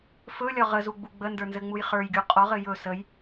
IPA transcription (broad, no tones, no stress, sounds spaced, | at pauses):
f ɵ lʲ ɒ ʁ ə z u ɡ͡b u ɡ͡b ə n d ə˞ n z ɘ ŋ͡m u j χ ə˞ j ɡʲ u qʼ ɔ ʁ ɘ j ɵ s ə j